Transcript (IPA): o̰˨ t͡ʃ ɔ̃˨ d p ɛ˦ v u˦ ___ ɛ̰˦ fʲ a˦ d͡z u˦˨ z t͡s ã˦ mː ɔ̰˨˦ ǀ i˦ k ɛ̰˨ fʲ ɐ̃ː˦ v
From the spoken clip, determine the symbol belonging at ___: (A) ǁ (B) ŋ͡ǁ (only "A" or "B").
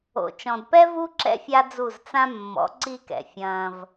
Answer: A